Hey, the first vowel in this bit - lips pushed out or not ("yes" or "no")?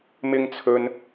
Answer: no